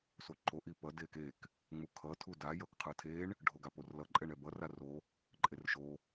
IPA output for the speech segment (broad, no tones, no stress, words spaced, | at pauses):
soǃo ʔipʌ dekek | ŋ͡mukʰʌ tʰuda jʌkqʰɯtʰeɳ | ɖʱoɡaporlʌ ǃʼɛɳɛbʌr aro | ǃʼerʃo